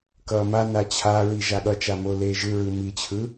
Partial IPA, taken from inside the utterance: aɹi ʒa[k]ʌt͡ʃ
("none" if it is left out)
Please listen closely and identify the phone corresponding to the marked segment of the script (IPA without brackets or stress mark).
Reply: ɠ